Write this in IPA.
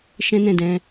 ʃ ɛ̃˦ n ɛ̃˦˨ d ɛ̃˧

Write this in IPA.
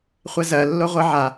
χʷ ɛ z ɜ lː o ʁʷ ɜ ʕ a

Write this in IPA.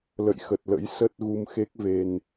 l ə̰˧˨ j x ə˨˩ t̚ l ə̰˧˥ j s ə˦˥ t̚ ɣ u˧ m x e˦˥ k̚ v e˧ n

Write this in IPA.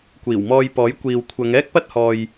kʷ iː˨˩ w m ɔː˧ j p ɔː˨˥ j kʷ iː˨ w kʷʰ ɐ˨˧ ŋ ɛː˥ k̚ p ɐ˥ t̚ h ɔː˨ j

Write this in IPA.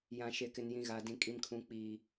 j ã˨ ʃ e˨ k ɪ˨ n j ĩ˨ ɣ a˨ d ĩ˨ kʼ i˨ m kʰ ũ˨ k͡p iː˨

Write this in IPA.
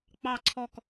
k͡p ɑ˦˨ ǀʰ ɔ˦˨ k

